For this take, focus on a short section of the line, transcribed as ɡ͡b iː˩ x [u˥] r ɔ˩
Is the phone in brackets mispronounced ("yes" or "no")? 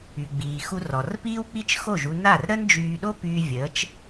yes